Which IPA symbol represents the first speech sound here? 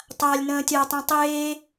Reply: tˤ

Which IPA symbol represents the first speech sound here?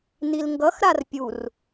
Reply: n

